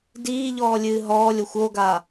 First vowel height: high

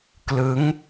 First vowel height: high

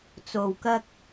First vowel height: mid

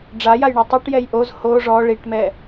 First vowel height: low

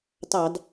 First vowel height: low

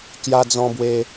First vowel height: low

